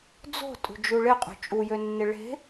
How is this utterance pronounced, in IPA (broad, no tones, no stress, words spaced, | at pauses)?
d͡zo̤ tʼṳd͡ʒuɭɪqʼṳ t͡ʃʼujønːɪ ɭe̤